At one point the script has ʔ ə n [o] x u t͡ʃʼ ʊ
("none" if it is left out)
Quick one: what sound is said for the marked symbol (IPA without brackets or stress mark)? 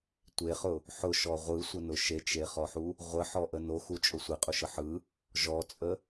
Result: o